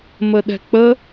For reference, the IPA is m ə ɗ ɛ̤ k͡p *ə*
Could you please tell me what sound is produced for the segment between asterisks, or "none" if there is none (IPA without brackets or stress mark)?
ə